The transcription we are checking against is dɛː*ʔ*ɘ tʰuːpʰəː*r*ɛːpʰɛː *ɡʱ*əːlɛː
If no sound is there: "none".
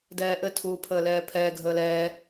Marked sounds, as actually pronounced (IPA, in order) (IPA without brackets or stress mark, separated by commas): ʔ, l, ɡʱ